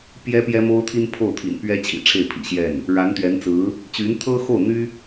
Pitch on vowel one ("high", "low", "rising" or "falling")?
high